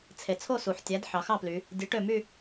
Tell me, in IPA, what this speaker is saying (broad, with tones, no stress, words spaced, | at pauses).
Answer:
t͡sʰe˩t͡sʰo˥˨su˩ħtʲæ˩˥d ħɑ˩˧xɑ˥˨ply˩˧ | dʲø˩˥ʈø˧˩my˥˨